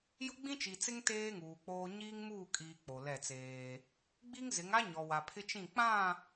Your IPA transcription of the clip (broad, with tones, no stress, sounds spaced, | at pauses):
j ʊ˦ ɡ͡b ĩ˦ t͡ʃ i˨ t͡s ɪ˦ ŋ t eː˦ ŋ uː˨ k͡p oː˦ ɲ iː˦ ŋ m uː˦˨ kʼ iː˨ k͡p o˨ l ɛ˦˨ t͡s eː˦ | ɡ͡b i˦ ŋ z ɪ˨˦ ŋ a˦ ɲ ɔ˨ w a˨ pʰ ɪ˦ t͡ʃ ĩ˦˨ k͡p ã˦˨